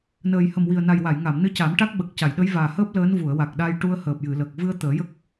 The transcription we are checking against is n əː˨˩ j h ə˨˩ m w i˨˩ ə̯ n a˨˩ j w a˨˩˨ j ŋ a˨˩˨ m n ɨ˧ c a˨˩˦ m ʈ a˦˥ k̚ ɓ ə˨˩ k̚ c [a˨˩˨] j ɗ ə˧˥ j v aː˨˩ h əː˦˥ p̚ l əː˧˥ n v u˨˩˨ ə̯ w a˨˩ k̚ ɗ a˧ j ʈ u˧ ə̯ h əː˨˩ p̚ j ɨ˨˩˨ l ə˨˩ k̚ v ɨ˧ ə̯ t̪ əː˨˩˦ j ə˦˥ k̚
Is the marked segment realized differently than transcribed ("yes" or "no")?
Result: no